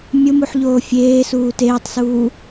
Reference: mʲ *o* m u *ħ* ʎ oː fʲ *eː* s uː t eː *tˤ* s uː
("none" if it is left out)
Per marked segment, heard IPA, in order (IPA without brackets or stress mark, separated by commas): o, ħ, eː, tˤ